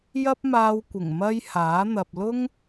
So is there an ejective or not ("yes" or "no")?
no